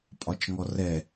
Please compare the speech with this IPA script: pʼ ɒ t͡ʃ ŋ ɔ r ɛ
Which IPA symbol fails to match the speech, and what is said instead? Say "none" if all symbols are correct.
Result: none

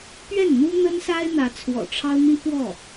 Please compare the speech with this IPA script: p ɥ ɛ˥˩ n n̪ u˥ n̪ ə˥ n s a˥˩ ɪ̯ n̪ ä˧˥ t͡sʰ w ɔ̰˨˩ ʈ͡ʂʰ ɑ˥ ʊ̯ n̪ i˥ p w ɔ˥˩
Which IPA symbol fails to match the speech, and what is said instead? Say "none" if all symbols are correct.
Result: a˥˩ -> a˥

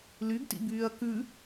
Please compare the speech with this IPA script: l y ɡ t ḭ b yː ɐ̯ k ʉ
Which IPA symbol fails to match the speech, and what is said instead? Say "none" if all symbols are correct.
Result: none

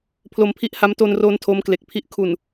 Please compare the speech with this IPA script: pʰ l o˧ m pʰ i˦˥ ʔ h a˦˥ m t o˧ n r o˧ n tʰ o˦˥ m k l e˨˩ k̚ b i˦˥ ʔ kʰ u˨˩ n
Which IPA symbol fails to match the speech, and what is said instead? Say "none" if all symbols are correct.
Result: b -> pʰ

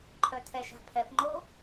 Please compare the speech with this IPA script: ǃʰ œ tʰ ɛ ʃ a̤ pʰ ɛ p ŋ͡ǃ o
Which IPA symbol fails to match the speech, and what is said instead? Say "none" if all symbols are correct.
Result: none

